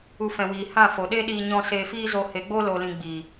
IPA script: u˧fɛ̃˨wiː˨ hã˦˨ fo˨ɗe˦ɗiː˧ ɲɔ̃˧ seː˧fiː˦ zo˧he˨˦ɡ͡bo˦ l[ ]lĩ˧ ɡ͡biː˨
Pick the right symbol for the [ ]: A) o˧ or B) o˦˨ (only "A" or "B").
A